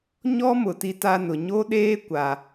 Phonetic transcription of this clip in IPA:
ɲ ɔ˦ m ʊ˨ t i˦ t a˦ n ʊ˨ ɲ o˦ ɗ eː˦ kʷ a˦

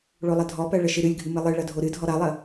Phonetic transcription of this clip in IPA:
ɭ o lˠ ə dʱ ɔ p ɜ ɭ ə ʃ ɨ ɾ ɨ lʲ ɡʱ ɨ m ɨ lˠ ɨ ɭ ɐ dʱ o ɾ ɨ dʱ ɔ ɾ ɐ lˠ ə

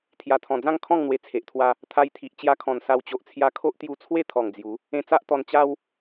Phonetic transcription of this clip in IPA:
t̪ʰ j a˨˩ t̪ʰ ɔ̃˨˩ d͡z ã˥˧ ŋ kʰ ɔ̃˥˧ ŋ n̪ w e˧ t͡sʰ e˨ ʔ t̪ʰ w a˦ | t̪ʰ a˧ j t̪ʰ i˨ ʔ t͡ɕ j a˧ kʰ ɔ̃˨˩ n s a˧ w t͡ɕ o˨ ʔ t͡sʰ j a˧ kʰ o˦ ʔ t̪ j u˧ t͡sʰ w e˥˧ t̪ʰ ɔ˨˩ ŋ d͡z j u˨˦ | ẽ˧ t͡s a˦ ʔ t̪ ɔ˧ n t͡ɕ a˦ w

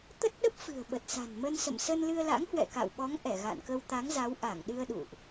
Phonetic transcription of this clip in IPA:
t̪ ə˦˥ t̚ ɗ ə˦˥ p̚ f ɨ̤˨˩ ə̯ ɓ ə˨˩ t̚ s a̤˨˩ n m ə˧ n s ə̰˧˨ m s ə˧ n l ɨ˧ ə̯ l a̰˧˥ ŋ h w ɛ̰˧˨ k a̰˧˨ w ɓ ɔ˨˦ ŋ ʔ ɛ˧˩ ɣ a̰˧˨ n k ə˧ w t̪ a˨˦ ŋ z a˨˦ w ʔ a˧˩ ŋ ɗ ɨ˧ ə̯ ɗ ṵ˧˨ ʔ

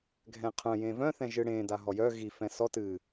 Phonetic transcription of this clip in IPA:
ɡʱ ɛ̃ qʰ œ̃ j ẽ v œ̃ θ ɛ̃ ʒ ɨ ɽ ẽ d a ɦ ɔ j œ ɣ i f ɛ̃ s ɔ t ɨ

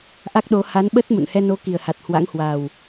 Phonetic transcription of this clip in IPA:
ʔ a˦˥ k̚ ɗ o˨˦ h a˨˦ n ɓ ə˦˥ t̚ m ṵ˧˨ n h ɛ˧ n o˨˦ k i˨˩ ə̯ h a˨˩ t̚ h w a̰˧˥ ŋ h w a˨˩ w

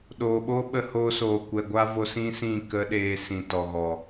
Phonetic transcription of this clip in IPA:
ɗ oː˨ ɓ o˦ ɓ ə˧ h oː˧ s oː˨ kʷ ɛ˨ ɡʷ a˦ v o˧ s ĩ˦ s ĩ˦˨ k ə˦ ɗ eː˧ s ĩ˨ t ɔ˨ ɣ ɔ˨

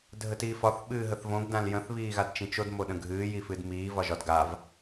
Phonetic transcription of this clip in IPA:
dʱ ə t iː f ɒ θ ɓ ɨː ɦ ə θ v õ ɡ d ã l j ə̃ θ β iː ɣ a d t͡ʃ ĩ t͡ʃ o d m o ɗ ə̃ ɡʱ ɨː j i f ɨ d m iː v ɒ ʒ ɒ d ɡ a v

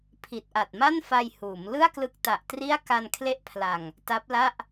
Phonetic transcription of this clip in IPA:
pʰ i˨˩ t̚ ʔ a˨˩ t̚ m a˥˩ n f a˧ j h uː˩˦ m l ɯ˥˩ a̯ k l ɯ˦˥ k̚ t a˨˩ ʔ t r i˥˩ a̯ k a˧ n kʰ l e˦˥ ʔ pʰ l a˨˩ ŋ | t a˦˥ p̚ l a˥˩ ʔ

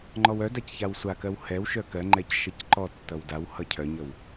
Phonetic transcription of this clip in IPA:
ŋ͡ǃ ɔ w œ d a c ç a w sʷ a k ɜ w h ɛ w ʃ œ k ɜ ŋ͡ǃ ɛ c ʃ ʌ c ǃ ɔ tː ʌ w d a w h ʌ cʰ œ ɲ ʌ w

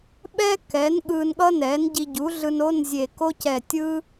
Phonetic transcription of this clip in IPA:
ɓ ɛ˥ k ɛ˩˥ n ɠ ɯː˧ n ɠ ʌ˥ n ɛː˩˥ n ɟ i˧ ɟ u˩˥ ɮ ɯ˧ n o˧˥˧ n zʲ e˧˩ k o˥ c ɛ˧˩ tʲ ɯː˥

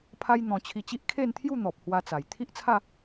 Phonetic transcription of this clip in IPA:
pʰ a˦ j n̪ ɔ̃˧ t͡ɕʰ i˧ t͡ɕ i˦ ʔ kʰ e˥˧ n t̪ʰ j u˥˧ n̪ ɔ˨ p̚ h w a˧ t͡s a˨˩ j t̪ʰ i˦ ʔ t͡sʰ a˥˧

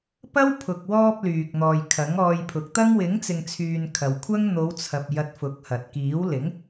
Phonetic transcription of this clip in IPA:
p ɐ˥ w pʰ ʊ˨ k̚ w ɔː˧ p̚ l yː˨ k̚ n̪ ɔː˨ j kʰ ɐ˨˥ ŋ ɔː˧ j pʰ ʊ˨˥ k̚ t̪ ɐ˥ ŋ w ɪ˨˥ ŋ t͡s ɪ˨ ŋ t͡sʰ yː˨ n kʰ ɐ˨ w kʷʰ ɐ˥ ŋ n̪ o˨˧ w t͡sʰ ɐ˨ p̚ j ɐ˨˥ t̚ f ʊ˨˥ k̚ h ɐ˨ t̚ k iː˨˥ w l ɪ˨˥ ŋ

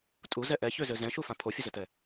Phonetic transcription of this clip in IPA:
tʼ u z ɛ ʔ ɛ ç ø z ø z ɛ̃ ʃ u f ã pʰ o fʲ ə z ə t ɛ

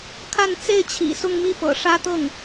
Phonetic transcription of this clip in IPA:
kʰ a˥˧ n t͡s e˥˩ ɪ̯ t͡ɕʰ ḭ˨˩ s ʊ˥˧ ŋ m i˥˩ p ɤ̰˨˩ ʂ ä˥ t̪ ɤ˥˩ ŋ

